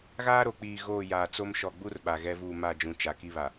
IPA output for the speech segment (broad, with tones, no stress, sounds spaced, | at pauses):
ɣ aː˦ ɾ o˨ k͡p iː˨ ɣ oː˦˨ j aː˨ t͡s o˦ m ʃ ɔ˨ ɡ͡b u˦ r ɓ a˨ ɣ ɛ˦ v uː˦˨ m a˦˨ d͡ʒ ũ˨ t͡ʃ a˨ k i˦ β a˨